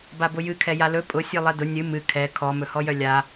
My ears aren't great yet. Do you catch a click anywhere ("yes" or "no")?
no